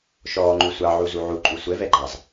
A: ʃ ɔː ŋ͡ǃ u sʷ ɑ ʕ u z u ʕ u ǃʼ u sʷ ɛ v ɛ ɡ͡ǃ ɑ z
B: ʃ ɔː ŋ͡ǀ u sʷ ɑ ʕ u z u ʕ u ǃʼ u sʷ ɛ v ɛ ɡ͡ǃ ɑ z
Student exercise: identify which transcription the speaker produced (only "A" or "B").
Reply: A